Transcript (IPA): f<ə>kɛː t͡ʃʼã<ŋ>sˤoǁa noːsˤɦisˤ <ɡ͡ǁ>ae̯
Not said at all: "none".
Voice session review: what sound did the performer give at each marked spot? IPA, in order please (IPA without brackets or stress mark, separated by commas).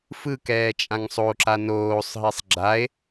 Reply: ɯ, ŋ, ɡ͡ǁ